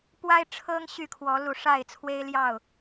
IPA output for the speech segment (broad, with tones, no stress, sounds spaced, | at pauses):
p w a˦ ɪ̯ ʈ͡ʂʰ ɤ˦ ŋ ɕ y˥˨ kʰ w ɔ˨˦ l u˨˩ ʂ a˥˨ ɪ̯ t͡sʰ w e˦ ɪ̯ l j ɑ˥˨ ʊ̯